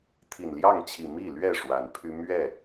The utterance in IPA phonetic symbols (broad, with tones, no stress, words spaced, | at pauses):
t̪ʰi˨˩nljɑ˥˨ŋt͡ɕʰi˨˩ mi˥˨lɥɛ˥˨ ʂwa˨˦npʰy˦ mɥɛ˥˨